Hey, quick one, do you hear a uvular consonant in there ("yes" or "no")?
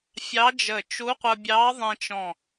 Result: yes